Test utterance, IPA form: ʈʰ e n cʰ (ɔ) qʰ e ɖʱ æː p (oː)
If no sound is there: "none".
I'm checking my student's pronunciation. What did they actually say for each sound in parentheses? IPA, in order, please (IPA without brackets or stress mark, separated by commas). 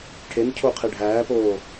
o, oː